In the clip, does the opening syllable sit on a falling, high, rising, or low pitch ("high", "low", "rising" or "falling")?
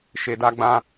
low